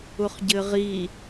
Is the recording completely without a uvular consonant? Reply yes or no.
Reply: no